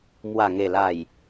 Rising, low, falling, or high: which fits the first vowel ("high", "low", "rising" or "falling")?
low